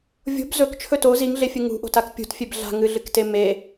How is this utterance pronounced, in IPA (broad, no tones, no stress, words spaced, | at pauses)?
vʲo̤b zɵkt͡ʃʰɵ to ziŋɮefʲɨ ŋṳʔo̤tak pʲṳtfʲeb ɮa̤ŋɨɮɨkte me